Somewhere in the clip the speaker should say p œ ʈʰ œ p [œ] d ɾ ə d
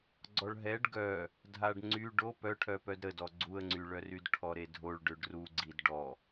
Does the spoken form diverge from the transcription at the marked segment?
no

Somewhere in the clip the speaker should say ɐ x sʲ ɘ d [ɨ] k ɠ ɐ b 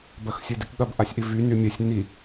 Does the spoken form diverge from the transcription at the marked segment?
yes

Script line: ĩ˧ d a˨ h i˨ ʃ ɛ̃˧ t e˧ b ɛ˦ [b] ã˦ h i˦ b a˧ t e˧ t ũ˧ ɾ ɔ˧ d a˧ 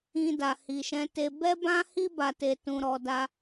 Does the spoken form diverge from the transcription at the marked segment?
no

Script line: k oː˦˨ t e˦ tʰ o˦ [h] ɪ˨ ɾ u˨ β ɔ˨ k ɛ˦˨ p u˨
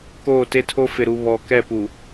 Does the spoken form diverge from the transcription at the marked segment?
yes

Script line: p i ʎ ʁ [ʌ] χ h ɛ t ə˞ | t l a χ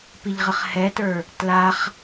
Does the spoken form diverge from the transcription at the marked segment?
yes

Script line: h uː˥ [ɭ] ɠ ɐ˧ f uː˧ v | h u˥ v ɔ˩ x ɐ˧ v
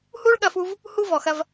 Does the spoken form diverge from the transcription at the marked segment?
no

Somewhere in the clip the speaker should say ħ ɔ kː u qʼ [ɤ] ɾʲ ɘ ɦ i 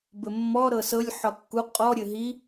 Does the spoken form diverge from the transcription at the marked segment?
yes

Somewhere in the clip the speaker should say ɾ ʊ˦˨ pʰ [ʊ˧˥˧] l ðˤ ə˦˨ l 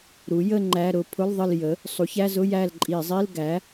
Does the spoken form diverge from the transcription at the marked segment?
no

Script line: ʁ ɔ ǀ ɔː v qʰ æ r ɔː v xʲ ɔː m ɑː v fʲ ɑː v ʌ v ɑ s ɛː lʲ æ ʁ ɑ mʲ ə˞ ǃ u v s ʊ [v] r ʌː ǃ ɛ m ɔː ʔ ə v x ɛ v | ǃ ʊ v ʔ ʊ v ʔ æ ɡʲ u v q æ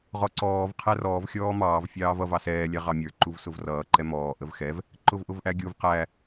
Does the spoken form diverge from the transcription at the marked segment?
no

